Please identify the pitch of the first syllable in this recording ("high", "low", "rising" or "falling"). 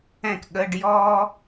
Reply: falling